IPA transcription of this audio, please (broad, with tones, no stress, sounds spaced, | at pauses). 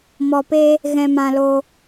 m ɔ˧ p e˦ | ɣ ɛ̃˧ m ã˧ l o˧